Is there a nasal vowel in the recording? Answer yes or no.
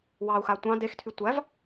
yes